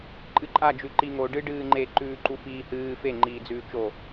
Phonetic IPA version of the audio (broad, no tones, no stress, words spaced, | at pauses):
ǃʼɨǃʼad͡ʒʉ ǃiŋo ɖɨɖɨːŋ͡ǃe ǃʉːǃufiːhɨː feŋ͡ǃiː d͡zʉːt͡ʃo